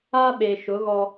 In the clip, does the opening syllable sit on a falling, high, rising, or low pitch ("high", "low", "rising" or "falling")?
high